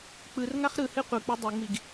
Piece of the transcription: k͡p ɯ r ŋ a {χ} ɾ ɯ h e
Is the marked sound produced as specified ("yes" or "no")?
yes